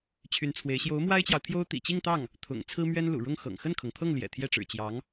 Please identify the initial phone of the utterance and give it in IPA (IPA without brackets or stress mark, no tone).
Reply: t͡ɕʰ